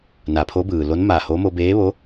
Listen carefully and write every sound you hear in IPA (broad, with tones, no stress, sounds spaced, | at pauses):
n a˩˧ pʰ o˧˥ b ɯː˩ l o˧˥ n m a˧˩ h o˧˥ m o˧ b eː˧˥ ʋ o˧˥